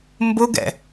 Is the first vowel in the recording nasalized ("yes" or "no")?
no